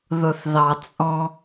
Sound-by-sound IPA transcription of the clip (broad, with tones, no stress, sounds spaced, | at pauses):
ð ʊ˨ θ ð ɑ˨ t͡sʼ ɔ̃˦